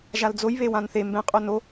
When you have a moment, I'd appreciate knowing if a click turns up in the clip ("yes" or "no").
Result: no